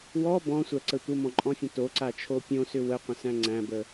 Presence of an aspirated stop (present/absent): present